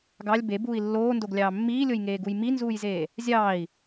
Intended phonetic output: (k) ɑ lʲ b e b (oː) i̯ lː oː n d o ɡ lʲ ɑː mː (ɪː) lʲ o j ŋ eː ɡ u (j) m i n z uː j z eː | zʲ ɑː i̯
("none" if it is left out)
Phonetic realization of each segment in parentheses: ɡ, uː, iː, j

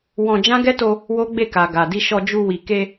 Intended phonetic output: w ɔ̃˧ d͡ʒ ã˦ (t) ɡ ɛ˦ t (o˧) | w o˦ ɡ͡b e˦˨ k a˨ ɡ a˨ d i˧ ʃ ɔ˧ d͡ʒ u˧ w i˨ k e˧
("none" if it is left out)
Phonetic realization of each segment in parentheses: none, o˧

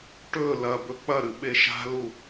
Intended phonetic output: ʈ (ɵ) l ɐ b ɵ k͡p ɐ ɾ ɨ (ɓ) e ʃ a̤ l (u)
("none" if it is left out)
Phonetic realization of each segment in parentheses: ɵ, ɓ, u

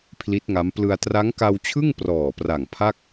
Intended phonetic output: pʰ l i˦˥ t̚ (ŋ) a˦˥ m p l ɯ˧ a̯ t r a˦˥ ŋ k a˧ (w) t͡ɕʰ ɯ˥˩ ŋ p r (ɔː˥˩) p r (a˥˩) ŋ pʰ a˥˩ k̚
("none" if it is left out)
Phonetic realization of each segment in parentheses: ŋ, w, ɔː˨˩, a˨˩

